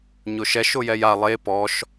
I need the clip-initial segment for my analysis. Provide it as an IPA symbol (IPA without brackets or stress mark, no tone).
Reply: ɲ